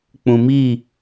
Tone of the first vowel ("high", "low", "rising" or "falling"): low